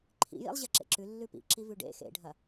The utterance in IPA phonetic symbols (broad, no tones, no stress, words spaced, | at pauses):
ǃʰḭjḭlˠ ʑeǁḛǁʉ lːʉpḭǁi vʉɖḛ xḛɖʱɐ